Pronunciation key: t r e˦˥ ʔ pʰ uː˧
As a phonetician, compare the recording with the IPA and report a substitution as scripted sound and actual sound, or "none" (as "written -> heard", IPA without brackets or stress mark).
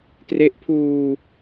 none